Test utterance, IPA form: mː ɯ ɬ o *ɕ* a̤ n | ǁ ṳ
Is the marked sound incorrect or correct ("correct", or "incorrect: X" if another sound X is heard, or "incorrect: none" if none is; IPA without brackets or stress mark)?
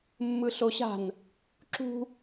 correct